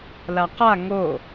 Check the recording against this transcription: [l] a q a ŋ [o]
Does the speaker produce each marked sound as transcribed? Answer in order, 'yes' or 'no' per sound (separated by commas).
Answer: yes, yes